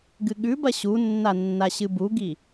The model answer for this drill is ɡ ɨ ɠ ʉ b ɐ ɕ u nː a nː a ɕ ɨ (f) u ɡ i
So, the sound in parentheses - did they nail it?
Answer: no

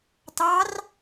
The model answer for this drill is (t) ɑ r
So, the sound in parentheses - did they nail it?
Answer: yes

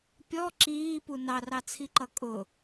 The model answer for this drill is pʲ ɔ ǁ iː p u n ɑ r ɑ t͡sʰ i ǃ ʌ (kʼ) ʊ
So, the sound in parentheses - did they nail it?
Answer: yes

